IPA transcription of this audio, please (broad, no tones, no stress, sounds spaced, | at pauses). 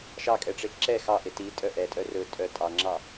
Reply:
ʃ ɑ kʼ ɛ ʈ͡ʂ e ǁ ɛ x ɑ ʔ e t i tʼ œ ʔ ɛ tʼ œ r ɵ tʼ œ tʼ ɑ ŋ͡ǁ ɑ